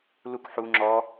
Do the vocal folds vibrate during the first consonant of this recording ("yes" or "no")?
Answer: yes